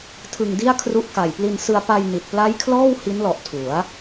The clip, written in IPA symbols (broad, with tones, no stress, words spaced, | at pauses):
tʰɯ˧ŋdi˥˩a̯kʰru˦˥ʔ ka˨˩j pli˧nsɯ˧a̯ pa˧jni˨˩t̚pla˦˥jkʰlɔː˥˩w hi˦˥nlɔ˨˩ʔ tʰu˩˦a̯